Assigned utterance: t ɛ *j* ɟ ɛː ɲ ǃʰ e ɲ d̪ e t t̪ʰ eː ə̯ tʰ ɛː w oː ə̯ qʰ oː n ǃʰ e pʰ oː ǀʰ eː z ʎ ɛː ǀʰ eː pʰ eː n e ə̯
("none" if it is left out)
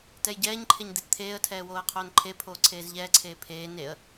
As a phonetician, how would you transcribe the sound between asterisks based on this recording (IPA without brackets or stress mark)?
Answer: j